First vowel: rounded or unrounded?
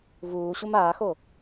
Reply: rounded